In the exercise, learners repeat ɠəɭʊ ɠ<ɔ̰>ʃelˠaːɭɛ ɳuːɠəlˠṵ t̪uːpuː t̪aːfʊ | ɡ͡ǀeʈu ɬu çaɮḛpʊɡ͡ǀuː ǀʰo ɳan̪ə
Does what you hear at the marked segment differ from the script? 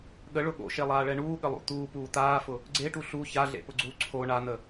yes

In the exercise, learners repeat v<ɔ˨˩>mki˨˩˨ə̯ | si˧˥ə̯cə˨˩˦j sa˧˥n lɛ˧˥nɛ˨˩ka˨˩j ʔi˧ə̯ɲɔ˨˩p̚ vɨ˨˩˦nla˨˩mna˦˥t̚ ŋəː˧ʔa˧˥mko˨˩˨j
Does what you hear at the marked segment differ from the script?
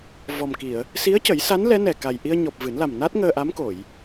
no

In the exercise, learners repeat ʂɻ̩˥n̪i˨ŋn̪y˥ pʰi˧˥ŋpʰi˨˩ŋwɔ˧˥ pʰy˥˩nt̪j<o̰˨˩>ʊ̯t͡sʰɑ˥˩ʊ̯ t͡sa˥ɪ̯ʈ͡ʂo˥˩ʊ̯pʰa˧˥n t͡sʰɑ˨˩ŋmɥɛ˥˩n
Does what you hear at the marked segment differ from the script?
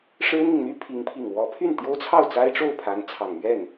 yes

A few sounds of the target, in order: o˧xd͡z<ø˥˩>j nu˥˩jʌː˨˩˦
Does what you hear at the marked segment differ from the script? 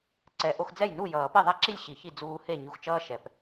yes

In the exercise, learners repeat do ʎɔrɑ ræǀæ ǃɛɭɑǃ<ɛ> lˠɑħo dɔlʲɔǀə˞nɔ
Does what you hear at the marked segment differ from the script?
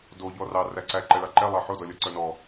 no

